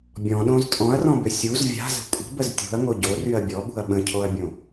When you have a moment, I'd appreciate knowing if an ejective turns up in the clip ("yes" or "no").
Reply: yes